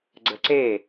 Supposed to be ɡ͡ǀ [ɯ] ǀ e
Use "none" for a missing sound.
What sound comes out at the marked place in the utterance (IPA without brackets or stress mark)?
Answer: ə